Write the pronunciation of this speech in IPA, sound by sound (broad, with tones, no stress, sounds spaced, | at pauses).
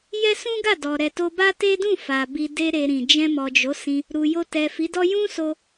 j ɛ˦ s ũ˦ ɡ a˦˨ d ɔ˨ ɾ ɛ˨ t o˧ b a˦ t e˦ d ũ˦˨ f a˨ b i˧ d e˦ ɾ e˧ ɾ ĩ˨ d͡ʒ ɛ̃˧ m ɔ˨ d͡ʒ o˨˦ s ĩ˧ | ɾ u˨ j o˧ t ɛ˨ f i˨˦ d ɔ˦ j ũ˦ s o˧